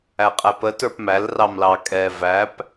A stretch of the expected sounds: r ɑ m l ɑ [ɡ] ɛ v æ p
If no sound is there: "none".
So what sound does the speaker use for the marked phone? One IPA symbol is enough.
kʼ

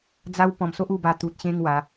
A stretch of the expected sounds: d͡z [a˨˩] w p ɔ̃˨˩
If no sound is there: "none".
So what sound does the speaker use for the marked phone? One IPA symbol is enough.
a˦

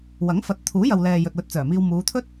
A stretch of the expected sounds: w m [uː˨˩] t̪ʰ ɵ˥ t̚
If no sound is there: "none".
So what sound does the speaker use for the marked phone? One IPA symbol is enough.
uː˨˧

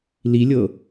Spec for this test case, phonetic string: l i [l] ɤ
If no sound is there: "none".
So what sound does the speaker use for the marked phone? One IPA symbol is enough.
lʲ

